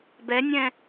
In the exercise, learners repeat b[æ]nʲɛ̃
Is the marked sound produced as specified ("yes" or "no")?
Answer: no